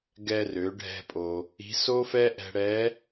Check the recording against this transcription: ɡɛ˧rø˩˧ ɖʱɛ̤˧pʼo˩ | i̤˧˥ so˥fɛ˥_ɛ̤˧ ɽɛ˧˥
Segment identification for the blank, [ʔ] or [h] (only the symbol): ʔ